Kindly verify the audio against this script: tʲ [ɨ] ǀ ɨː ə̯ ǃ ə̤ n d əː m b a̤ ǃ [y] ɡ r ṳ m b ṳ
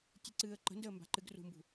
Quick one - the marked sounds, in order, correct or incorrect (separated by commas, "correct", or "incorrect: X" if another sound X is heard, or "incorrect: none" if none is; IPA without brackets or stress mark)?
correct, incorrect: ɨ